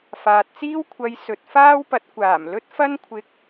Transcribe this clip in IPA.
f aː˨ t̚ t͡s iː˥ w kʷʰ ɐ˧ j s ɵ˨ t̚ f aː˥ w p ɐ˨˥ t̚ kʷ aː˨˩ m l ɵ˥ t̚ f ɐ˥ n kʷʰ ɪ˧ k̚

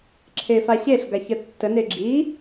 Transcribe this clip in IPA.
ǁʰ e f a ɕ e ɬ ɡ a ç ə tː ə n e ɡ͡ǁ i

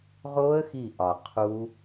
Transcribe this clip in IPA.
ʁ o˦˥ ə̯ x i˧˩ ʔ ɒ˩ qʰ u˦˥

